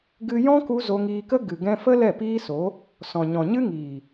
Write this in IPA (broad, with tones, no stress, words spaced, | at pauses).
ɡɨ˧jɔ̃˦ku˧ zo˧ŋiː˧kə˦ ɡɨ˨ɡɛ̃˧fə˦ lɛ˦˨piː˦so˨˦ | sɔ̃˨ ɲɔ̃˨ɲɨ˦ ŋiː˨